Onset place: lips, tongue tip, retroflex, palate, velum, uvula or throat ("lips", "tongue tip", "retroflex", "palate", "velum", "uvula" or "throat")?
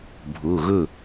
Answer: lips